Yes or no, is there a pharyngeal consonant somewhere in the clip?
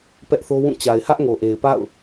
no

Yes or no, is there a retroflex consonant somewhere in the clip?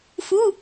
no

